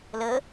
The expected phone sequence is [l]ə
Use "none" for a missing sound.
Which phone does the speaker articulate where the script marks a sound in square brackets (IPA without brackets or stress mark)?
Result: l